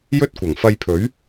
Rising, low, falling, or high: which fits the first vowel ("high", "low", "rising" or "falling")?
high